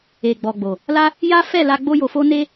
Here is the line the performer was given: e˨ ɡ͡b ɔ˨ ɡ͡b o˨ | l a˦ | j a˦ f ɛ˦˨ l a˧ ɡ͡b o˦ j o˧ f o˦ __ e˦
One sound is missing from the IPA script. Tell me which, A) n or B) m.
A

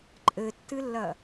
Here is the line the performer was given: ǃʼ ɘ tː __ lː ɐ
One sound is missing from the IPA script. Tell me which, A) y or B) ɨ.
B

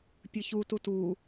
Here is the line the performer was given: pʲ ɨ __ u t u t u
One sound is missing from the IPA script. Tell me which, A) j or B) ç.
B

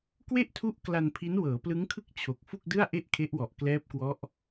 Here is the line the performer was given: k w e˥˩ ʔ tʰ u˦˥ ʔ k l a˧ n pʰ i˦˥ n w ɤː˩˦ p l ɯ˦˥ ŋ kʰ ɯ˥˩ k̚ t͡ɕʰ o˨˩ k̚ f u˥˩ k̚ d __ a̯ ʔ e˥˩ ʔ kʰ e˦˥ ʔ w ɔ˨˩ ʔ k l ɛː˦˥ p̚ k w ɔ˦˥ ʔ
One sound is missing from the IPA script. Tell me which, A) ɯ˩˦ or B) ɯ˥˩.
B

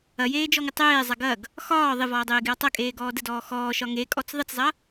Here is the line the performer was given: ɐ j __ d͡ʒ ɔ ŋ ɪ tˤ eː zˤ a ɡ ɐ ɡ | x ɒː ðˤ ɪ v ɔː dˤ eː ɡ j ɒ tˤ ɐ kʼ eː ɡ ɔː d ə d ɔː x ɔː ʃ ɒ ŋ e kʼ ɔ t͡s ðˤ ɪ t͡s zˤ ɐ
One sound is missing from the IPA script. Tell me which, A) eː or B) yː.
A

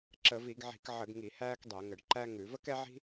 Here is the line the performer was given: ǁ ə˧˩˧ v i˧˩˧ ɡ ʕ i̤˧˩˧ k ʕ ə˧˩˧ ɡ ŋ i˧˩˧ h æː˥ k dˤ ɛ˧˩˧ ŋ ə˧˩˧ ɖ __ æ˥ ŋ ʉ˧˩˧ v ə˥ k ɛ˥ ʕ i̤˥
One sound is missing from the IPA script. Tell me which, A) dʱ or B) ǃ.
B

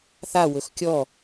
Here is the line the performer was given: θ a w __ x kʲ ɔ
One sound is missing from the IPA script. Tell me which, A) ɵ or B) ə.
A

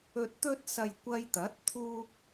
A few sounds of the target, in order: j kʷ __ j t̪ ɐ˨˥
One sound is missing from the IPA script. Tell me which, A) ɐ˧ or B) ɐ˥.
A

